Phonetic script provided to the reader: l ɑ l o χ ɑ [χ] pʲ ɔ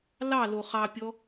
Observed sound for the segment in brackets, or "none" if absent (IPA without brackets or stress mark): none